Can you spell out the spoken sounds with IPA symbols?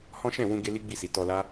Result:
hɔ̃˦ ʃɛ̃˦˨wũ˧ ɡe˦li˦ɡ͡bi˦˨si˨ tɔ˧la˦

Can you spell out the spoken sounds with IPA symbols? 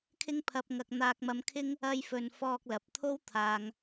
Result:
kʰɪ˥ŋpʰɐ˧p̚ŋɐ˧k̚ n̪aː˧k̚mɐ˧mkʰɪ˥ŋ | ɐ˧jfɵ˨n fɔː˧k̚lɐ˨p̚t̪ʰo˥w t̪ʰaː˨ŋ

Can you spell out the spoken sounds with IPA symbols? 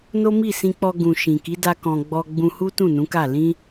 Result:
no˦mi˦˨sĩ˧k͡pɔ˧ ɡũ˨ ʃĩ˨ki˨˦da˧ kɔ̃˨ ɡ͡bɔ˧ɡ͡bũ˧ hu˦tũ˦˨nũ˨˦ka˦˨ lĩ˧

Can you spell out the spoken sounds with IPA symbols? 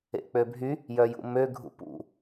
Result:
ḛk͡pøbʱy | jœjṵmø ɡʱṵpṵ

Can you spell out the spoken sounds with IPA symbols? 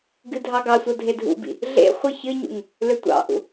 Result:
ɡɨdʱɑɡɑsʷʌ dʱedʱṵbḭ | ɮḛχʷɨ çɨɲṵŋ | lʏtʷɑ̰ʔṵ

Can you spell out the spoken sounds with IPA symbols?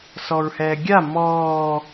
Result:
sɔɹhɛːɡʲa mɔː

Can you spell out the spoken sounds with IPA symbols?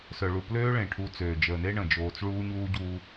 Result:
sœ˨ɭu˨pløː˦ ɭẽ˨ʈʰu˨˦ t͡søː˨d͡ʒəː˨ne˦ ɳə̃˨d͡ʒoː˨t͡s ɭuː˦ɲuː˦ɟuː˦

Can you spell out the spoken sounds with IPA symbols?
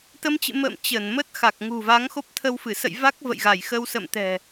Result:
t̪ə˧mt͡ɕɨ̰˧˨ mə̰ː˧˨m t͡ɕəː˧˩nmə˦˥t̚xa˨˩k̚ ŋṳ˨˩va˨˦ŋxo˦˥p̚ t̪ʰə˧wfɨ˧˩ sə̰˧˨j va˦˥k̚ və̰˧˨jɣa˧˩jxə˧w sə̰˧˨mt̪ɛ̤˨˩

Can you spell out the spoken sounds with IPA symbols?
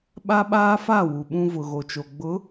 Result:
ɓa˦ɓaː˦fa˦˨ wu˨ɓũ˦ vʊ˨ɣo˨t͡ʃo˨ ɡ͡bʊ˨˦

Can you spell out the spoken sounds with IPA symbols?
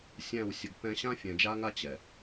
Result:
sʲæ̃˦˨wsʲə˨ɡpɛ̃˦ ɕã˦fʲɛ̃˨d͡ʒa˦ŋa˦ t͡ɕɛ˨

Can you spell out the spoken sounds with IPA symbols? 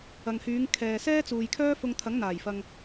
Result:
ɐ˨ŋhyː˨˧ŋ kʰɛː˨ sɛː˥t͡suː˨jkʰœː˥fʊ˧ŋ t̪ʰɐ˨˥ŋn̪aː˨˩jfɐ˨ŋ

